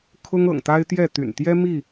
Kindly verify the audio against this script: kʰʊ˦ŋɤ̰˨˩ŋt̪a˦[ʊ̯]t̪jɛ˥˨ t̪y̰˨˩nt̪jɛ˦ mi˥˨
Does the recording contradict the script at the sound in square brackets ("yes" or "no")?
yes